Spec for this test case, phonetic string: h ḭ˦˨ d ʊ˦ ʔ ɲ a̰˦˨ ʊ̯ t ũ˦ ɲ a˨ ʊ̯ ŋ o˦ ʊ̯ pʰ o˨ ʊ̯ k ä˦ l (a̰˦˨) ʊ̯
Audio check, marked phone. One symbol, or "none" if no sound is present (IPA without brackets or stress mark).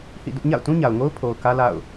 a̰˦˨